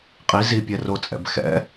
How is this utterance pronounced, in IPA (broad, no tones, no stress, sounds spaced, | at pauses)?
qʼ i z i pʲ ɛ r o t͡sʼ ɛ̰ b x ɛ̰